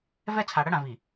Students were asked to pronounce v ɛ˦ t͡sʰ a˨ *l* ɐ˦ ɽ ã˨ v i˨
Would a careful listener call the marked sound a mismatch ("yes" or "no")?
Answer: yes